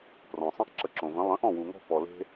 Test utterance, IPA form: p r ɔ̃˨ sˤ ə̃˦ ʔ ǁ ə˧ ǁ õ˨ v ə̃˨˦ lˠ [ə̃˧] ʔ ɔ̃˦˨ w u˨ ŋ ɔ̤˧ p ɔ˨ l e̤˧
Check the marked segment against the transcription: incorrect: ə̃˨˦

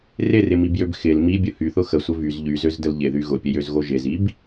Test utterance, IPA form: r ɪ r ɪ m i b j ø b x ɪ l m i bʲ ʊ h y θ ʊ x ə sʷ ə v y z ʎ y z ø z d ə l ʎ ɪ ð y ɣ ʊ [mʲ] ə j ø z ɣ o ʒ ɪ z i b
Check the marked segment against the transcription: incorrect: pʲ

